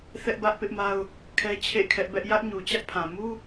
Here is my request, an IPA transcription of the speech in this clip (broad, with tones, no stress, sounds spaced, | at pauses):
θ ɛ˦ ʔ b ä˦ ʔ p ɪ˦ ʔ m a˦ ʊ̯ | kʰ ɛ˦ t͡ɕʰ ḛ˦˨ kʰ ɛ˦ ʔ b ɛ˦ ʔ j ä˦ ʔ ɲ u˨ t͡ɕ ä˦ ʔ pʰ ã˨ m u˦